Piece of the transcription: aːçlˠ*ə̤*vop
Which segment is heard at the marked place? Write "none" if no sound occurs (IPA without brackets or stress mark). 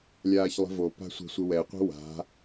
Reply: ə̤